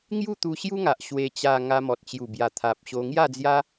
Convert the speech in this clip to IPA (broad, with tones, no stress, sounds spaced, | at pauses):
ŋ j u˥˧ t̪ u˧ ɕ j u˦ ŋ a˨ ʔ ɕ w e˧ t͡ɕ a˧ ŋ a˧ m ɔ˨ t̚ t͡ɕ j u˨˩ b j a˨˩ t̪ʰ a˨ p̚ ɕ o˧ ŋ j a˥˧ d͡z j a˦